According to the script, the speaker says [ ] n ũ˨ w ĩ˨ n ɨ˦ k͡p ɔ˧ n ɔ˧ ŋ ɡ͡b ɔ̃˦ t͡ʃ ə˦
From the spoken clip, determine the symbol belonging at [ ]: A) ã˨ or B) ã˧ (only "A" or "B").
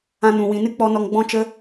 B